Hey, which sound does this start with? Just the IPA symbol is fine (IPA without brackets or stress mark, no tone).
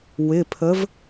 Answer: w